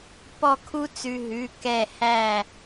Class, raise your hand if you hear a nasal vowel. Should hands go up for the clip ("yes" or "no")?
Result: no